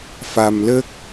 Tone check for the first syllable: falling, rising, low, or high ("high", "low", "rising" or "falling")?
low